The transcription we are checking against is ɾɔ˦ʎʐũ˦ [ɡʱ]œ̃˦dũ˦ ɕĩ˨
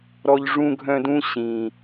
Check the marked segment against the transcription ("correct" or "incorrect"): correct